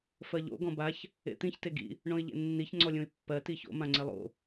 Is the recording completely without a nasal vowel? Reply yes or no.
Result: no